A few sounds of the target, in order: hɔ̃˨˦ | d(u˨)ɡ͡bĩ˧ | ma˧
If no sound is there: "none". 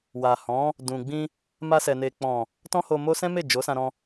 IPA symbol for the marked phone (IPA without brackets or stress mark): ũ˨